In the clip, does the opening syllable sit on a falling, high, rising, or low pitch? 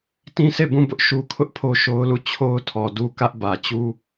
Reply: high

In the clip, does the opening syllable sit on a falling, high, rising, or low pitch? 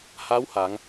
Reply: rising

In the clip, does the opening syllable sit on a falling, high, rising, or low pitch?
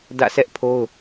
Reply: falling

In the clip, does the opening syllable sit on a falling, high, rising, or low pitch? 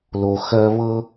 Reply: low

